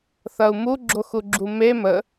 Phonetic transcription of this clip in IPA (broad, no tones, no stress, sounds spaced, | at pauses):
θ ɐ u̯ m u ɡ͡ǁ o x u ɡ͡ǁ u m e m ə